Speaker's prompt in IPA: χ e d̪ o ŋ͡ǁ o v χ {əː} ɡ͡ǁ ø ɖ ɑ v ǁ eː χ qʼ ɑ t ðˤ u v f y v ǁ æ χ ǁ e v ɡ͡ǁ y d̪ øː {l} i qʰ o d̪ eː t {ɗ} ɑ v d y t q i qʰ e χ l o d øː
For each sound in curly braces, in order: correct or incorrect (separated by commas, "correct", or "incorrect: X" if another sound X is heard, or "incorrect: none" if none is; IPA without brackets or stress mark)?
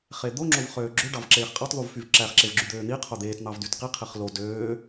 incorrect: øː, incorrect: n̪, incorrect: n̪